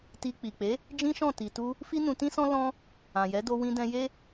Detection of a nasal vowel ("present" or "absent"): present